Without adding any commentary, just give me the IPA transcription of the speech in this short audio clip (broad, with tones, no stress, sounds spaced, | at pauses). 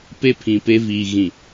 p e˦ pʰ ĩ˨ p e˦ v iː˨ ɣ ĩ˨